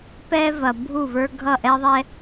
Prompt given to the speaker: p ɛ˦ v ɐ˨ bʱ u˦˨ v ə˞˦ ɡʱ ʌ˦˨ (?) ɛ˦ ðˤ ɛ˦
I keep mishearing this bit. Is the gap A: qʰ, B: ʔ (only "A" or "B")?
B